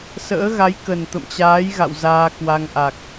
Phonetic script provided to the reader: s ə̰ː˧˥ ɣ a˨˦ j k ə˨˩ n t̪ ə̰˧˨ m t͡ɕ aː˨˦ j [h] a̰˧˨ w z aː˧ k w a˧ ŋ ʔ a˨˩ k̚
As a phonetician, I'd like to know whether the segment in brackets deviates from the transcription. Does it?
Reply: yes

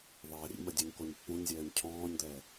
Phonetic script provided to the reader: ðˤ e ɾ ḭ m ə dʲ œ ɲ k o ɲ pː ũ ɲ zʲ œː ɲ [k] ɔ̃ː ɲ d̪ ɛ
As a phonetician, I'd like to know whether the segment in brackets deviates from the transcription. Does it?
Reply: yes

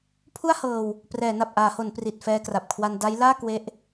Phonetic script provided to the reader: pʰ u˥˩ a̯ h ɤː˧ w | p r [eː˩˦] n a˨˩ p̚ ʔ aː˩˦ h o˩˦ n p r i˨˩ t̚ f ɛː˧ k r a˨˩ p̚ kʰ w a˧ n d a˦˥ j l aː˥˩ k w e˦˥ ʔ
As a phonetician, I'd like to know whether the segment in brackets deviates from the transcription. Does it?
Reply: yes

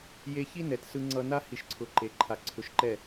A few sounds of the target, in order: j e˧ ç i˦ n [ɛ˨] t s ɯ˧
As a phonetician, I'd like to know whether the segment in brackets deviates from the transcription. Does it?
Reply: no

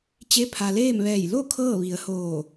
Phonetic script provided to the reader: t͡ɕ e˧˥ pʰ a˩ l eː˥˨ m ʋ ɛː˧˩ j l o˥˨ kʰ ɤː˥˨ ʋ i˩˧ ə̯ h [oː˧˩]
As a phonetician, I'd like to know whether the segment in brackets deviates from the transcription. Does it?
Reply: no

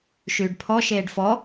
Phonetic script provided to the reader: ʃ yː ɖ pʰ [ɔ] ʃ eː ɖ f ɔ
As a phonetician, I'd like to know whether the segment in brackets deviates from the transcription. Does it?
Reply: no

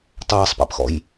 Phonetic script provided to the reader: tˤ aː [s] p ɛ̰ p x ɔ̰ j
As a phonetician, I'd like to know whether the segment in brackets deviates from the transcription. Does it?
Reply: yes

